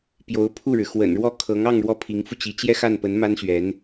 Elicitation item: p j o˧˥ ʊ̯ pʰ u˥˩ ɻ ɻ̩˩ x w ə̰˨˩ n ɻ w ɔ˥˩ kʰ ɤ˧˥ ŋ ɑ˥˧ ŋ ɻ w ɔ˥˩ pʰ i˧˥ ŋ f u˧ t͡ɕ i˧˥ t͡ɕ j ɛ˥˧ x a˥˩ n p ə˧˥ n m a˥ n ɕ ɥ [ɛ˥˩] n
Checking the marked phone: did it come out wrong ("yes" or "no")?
yes